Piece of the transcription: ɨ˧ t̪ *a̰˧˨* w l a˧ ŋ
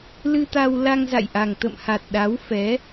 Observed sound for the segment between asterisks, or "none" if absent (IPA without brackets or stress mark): a˧